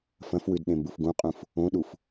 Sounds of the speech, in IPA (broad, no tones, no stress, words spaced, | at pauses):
fɐ̃fwʉd ɗẽmbufɡũqʼũf | õɗuf